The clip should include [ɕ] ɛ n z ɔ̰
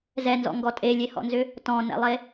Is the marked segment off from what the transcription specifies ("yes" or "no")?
yes